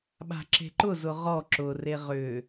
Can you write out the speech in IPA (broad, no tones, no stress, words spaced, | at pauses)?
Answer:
ɓa̤ǁe̤ǃʊ zʊʁɔ ǁʊre ʁʏ